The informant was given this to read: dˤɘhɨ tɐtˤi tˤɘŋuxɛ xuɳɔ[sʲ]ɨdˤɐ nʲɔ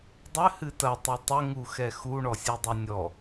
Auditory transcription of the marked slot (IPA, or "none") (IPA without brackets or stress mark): sʲ